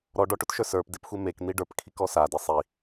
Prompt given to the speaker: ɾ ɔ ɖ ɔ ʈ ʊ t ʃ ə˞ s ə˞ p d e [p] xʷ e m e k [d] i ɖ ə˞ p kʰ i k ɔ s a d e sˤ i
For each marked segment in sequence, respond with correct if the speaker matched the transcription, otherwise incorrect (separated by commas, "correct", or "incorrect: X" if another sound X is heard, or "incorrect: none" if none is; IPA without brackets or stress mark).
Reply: correct, incorrect: n̪